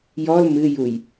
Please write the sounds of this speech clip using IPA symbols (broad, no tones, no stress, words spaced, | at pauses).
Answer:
jɔl mɨjuj